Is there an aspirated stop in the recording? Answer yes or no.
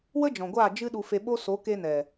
no